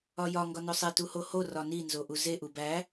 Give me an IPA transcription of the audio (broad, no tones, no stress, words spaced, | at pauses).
ɒjɒ ŋɡɒnosˤe tuhoho rɒni nzoʔuze ʔubæ